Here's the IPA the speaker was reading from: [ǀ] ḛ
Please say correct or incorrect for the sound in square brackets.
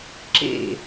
incorrect